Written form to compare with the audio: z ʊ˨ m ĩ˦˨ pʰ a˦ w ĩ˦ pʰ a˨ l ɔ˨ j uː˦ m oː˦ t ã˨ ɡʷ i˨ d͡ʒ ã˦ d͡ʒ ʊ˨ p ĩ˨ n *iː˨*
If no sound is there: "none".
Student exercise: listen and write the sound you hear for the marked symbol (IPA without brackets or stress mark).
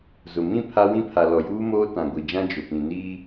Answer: iː˦